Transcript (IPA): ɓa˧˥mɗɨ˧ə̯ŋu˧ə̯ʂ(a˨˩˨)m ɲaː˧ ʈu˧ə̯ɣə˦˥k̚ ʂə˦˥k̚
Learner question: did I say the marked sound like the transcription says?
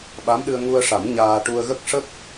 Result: no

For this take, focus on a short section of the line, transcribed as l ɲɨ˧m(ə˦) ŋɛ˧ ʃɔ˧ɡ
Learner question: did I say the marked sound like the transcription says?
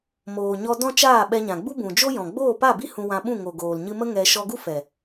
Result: yes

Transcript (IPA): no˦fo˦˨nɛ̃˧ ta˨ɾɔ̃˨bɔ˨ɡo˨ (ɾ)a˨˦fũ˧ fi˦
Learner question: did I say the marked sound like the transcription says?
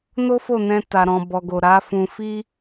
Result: yes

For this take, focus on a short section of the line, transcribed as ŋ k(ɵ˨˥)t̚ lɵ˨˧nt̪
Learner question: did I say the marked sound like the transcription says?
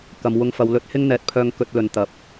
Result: yes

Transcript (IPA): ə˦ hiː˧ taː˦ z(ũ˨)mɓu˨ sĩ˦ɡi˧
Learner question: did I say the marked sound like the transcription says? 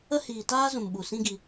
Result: yes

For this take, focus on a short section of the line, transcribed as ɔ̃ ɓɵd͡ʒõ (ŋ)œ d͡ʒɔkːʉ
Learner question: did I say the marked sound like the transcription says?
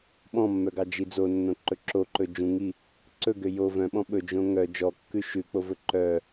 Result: yes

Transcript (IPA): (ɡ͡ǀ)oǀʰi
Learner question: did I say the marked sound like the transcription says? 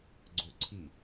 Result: yes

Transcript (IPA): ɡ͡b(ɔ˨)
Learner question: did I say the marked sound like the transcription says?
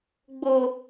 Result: no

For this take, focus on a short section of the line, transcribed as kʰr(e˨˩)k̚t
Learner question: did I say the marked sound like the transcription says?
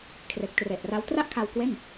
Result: yes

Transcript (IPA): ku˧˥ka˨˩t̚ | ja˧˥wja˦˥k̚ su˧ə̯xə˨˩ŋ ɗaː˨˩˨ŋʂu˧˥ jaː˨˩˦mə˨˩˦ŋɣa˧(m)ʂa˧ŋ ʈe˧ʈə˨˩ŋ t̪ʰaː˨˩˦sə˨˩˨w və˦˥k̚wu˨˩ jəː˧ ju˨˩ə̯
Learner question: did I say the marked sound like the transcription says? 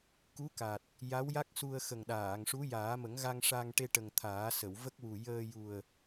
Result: no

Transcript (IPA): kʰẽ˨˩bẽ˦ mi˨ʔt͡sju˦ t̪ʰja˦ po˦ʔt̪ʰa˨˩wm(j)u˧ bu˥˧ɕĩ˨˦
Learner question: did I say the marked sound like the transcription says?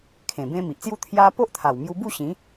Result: yes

